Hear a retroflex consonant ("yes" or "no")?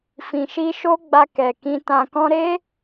no